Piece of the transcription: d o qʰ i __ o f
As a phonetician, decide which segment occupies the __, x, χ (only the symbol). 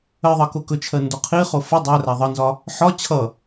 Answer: χ